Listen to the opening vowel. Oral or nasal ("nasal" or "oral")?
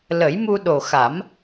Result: oral